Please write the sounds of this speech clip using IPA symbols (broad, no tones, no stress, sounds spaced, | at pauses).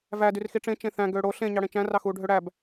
v æ d y r x i ʈ͡ʂ ẽ t͡ʃ ẽ θ æ̃ ɡ øː ɽ o ɬ ẽ ɲ ɑ ɽ ẽ t͡ʃ æ̃ r ɑ x uː ɖʱ ø ɽ æ b